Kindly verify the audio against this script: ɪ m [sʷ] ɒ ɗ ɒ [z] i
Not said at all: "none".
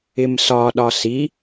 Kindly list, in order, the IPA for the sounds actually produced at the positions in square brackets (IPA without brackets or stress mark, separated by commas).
s, s